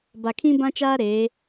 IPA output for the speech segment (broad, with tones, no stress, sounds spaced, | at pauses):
b a˨ kʰ ĩ˦ b ã˦ t͡ʃ aː˦ ɾ eː˨˦